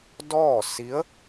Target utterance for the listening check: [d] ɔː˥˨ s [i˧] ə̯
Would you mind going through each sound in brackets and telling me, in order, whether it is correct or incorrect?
correct, incorrect: i˧˥

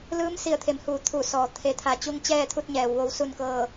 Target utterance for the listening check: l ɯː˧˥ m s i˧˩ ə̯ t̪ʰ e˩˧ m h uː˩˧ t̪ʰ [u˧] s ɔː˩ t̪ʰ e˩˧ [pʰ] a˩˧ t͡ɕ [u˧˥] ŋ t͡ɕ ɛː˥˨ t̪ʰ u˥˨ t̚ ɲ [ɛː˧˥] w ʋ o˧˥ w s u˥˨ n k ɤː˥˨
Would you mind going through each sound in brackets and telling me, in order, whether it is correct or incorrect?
incorrect: u˧˩, incorrect: t̪ʰ, incorrect: u˧, incorrect: ɛː˩˧

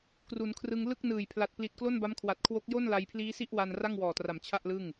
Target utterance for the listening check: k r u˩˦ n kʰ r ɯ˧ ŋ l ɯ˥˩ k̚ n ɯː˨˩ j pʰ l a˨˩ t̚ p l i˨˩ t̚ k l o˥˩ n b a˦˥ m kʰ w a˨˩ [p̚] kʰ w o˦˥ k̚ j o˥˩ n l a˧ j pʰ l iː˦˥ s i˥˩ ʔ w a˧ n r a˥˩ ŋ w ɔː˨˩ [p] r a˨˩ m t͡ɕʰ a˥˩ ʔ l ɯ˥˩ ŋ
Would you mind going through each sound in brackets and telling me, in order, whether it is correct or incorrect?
incorrect: t̚, incorrect: t

